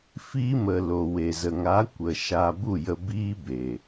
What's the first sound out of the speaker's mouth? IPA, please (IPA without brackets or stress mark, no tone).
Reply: f